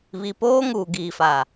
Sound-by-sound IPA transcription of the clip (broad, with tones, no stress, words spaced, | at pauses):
βi˨poː˦ŋuː˨ ɡiː˨faː˨